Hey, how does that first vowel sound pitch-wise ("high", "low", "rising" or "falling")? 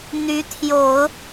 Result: rising